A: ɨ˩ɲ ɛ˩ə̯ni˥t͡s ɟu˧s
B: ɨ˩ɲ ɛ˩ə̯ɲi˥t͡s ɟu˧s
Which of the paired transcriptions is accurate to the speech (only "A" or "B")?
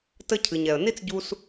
A